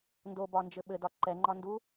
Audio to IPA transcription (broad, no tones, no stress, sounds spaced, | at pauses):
n d o b ɒ n d͡ʒ ɘ ɓ ɘ d ɒ ǃ ɛ ŋ͡ǃ ɒ n d u